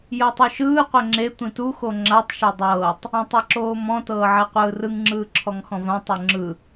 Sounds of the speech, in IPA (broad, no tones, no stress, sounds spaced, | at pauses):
j ɤ tˤ u ʃ ɯː qʷ ɛ ŋ͡ǁ e tʷ ĩ t u x o ŋ͡ǁ a tˤ ʃ ɛ dˤ ɤː tˤ | ã tˤ a ǁ oː m ɔ̃ t ɤː ʕ ɛ qʷ ɯː r ɯ ŋ ŋ͡ǁ ɯː ǁʰ ɔ ŋ x ɔ̃ v ã tˤ o ŋ͡ǁ ɯ